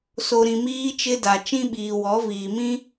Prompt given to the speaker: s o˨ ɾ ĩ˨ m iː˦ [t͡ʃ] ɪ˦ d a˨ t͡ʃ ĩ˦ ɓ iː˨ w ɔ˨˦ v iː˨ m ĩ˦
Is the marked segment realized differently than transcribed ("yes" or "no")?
no